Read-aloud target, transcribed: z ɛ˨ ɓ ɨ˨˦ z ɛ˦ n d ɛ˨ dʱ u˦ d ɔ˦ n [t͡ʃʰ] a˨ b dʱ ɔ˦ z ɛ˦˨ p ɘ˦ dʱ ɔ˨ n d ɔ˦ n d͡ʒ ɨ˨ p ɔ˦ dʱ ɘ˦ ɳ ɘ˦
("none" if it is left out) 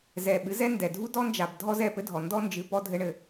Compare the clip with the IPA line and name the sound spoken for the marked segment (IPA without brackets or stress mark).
d͡ʒ